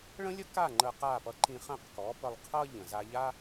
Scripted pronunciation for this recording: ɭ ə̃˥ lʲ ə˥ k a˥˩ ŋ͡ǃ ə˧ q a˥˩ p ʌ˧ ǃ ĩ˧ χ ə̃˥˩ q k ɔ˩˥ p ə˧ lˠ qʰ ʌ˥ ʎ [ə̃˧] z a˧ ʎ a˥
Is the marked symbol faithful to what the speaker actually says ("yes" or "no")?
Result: no